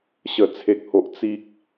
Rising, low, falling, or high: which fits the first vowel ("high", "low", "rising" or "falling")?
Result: falling